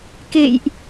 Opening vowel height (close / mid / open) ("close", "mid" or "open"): mid